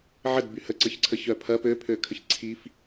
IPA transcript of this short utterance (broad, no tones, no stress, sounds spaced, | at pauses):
ʕ ə d b y h ə ǀ ə ç ǀʰ ə ç œ pʰ ɐ p ø pʰ ø kʰ ə ç ǀʰ i f